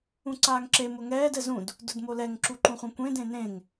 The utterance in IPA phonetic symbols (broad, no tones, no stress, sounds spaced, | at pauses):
ũ ǀ aː ŋ ǁ e m ʊ ŋ ɛː d ɛ z ũ d | d ʊ d m o l ɛ ŋ ǁ u ǃ ũ χʷ ẽ kʷ ẽ d ẽ n ẽ ŋ